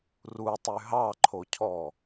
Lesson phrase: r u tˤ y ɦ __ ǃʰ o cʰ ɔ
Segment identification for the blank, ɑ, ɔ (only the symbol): ɑ